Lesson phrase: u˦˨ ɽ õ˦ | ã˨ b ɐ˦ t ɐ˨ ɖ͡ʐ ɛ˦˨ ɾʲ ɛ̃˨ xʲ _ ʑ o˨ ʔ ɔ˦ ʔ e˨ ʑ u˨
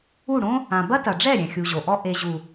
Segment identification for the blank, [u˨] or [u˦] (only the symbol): u˨